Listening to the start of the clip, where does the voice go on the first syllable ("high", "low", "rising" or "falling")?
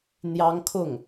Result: high